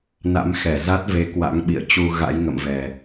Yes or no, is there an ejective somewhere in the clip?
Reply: no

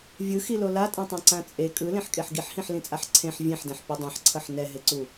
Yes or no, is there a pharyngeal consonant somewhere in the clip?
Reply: yes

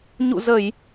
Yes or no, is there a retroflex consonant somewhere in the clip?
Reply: no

